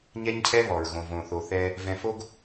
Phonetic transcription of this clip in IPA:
ɲɛ˦ɲcʰɛ˦ βɔ˨ɹɣõ˨võ˨ θo˨θɛ˧ | vɛ̃˧ fo˦ɡ

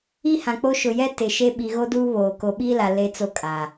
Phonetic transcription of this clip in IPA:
i˦hã˨k͡po˦ ʃʊ˨jɛ˦ tɪ˨ʃe˦ ɓi˨ɣo˦du˦ βoː˨ ko˨ɓiː˦la˨ le˦t͡so˦ kʼaː˨

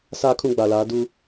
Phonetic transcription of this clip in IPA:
saː˦kʰũ˦ɡ͡ba˨laː˨˦ du˦

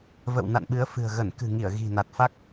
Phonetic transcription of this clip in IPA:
və̰˧˨wna̰˧˨nɓɨ˨˦ə̯ fɨ̤˨˩ə̯ ɣə˧˩nkɨ̤˨˩ŋi˧˩ə̯ ɣi̤˨˩na˨˩t̚fa˦˥k̚

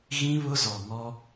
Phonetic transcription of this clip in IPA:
ɣĩ˦βʊ˦zɔ˨ŋɔ˦

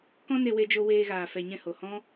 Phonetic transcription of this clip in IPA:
kɔ̃˦ne˧we˧d͡ʒo˧ weː˧ɣaː˨fɛ˨ɲɛ̃˧ ho˨hɔ̃˦

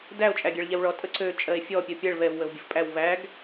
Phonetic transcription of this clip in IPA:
dæo̯ t͡ʃʼæɡʲæɭʎɛwɭɔ tʼəǀø t͡ʃʼɜe̯fʲɔ pʲɜpʲɛɭ vɛv wəvbʲəfpʼæw væɡ

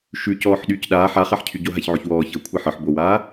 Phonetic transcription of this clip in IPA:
ʃʉ cɔːħɗyːcɗaː ħaχaħcʰyɟo ɦaçʕoçwɔː çɤ kʷʰaħɤħ bowaː

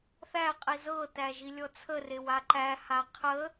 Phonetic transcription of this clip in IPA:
θæqʼi zɤtæ ʒilʲɔt͡sʰərew aǃæha qʰə

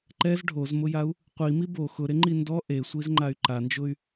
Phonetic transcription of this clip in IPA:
ǃɛz ɖʱozmʊjau̯ | qʷimi bo xʊɾeŋ͡ǃi ndɔ ʔesʷizŋ͡ǃay̯ ǃand͡ʒʊy̯

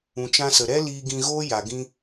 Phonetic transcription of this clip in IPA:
ũ˨t͡ʃã˧sə˨ɾɛ˦ liː˧ɡĩ˧ɣoː˦ ja˨ɡĩ˧

